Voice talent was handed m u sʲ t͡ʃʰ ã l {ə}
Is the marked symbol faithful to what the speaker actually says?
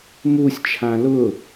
no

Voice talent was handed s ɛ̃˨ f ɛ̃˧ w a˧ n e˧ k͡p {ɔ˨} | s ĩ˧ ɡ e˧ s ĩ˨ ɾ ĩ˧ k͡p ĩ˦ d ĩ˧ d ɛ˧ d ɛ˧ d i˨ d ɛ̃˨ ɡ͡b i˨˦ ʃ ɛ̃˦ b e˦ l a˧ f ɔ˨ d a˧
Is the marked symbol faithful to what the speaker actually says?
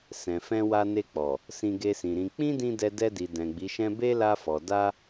yes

